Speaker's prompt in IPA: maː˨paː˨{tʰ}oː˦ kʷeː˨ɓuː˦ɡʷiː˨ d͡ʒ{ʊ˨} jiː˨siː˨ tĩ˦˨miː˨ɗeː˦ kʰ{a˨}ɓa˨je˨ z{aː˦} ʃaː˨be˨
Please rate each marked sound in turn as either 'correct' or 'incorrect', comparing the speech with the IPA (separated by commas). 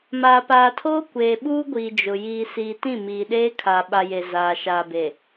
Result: correct, correct, correct, incorrect